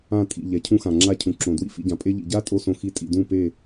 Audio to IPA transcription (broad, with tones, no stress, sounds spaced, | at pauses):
ã˦˨ tʼ ḭ˨ ʎ ɛ˨ cʰ ũ˦ x ã˨ ŋ͡ǁ a˦ cʰ ũ˨ ǁ õ˨ d w ḭ˦ f ḭ˧ ɟ ã˨ pʼ e˦ ʎ ḭ˨ ɟ a˦ tʼ o˦ s õ˧ x i˧ tʼ ḭ˨ d ũ˦˨ p e˦˨